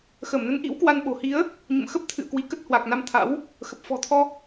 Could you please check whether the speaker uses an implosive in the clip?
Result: yes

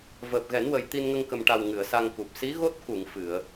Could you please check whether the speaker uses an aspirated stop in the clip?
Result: no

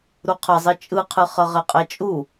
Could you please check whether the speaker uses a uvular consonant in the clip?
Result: yes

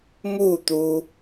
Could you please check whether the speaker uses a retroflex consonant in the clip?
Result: no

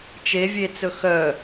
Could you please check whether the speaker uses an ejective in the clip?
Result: no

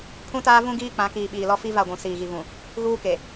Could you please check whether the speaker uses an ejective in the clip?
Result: no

